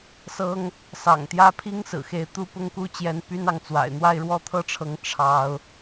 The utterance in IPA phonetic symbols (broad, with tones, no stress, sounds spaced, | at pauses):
s ɤ˥ ŋ | s ɑ̰˨˩ ŋ t̪ j ä˥ pʰ i˥ ŋ s ɹ̩˨˩ x e˧˥ ɪ̯ t̪ u˥ p ʊ˥ ŋ k u˥ t͡ɕ j ɛ˥ n p y˥ n ɑ˧˥ ŋ t͡s w a̰˨˩ ɪ̯ n̪ w a˥˧ ɪ̯ ɻ w ɔ˥˧ t̪ʰ ɤ˥˩ ʈ͡ʂʰ ɤ˧˥ ŋ ʈ͡ʂʰ ɑ˥ ʊ̯